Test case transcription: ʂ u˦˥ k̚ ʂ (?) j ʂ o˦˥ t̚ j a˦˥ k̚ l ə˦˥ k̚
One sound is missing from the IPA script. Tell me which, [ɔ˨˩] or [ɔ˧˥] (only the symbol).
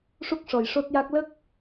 ɔ˨˩